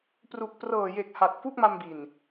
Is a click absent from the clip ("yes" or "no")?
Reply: yes